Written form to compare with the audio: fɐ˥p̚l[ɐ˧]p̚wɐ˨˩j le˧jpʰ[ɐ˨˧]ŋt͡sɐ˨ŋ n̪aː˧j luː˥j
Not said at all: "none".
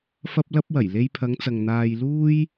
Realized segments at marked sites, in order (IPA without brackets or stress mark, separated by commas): ɐ˥, ɐ˨˧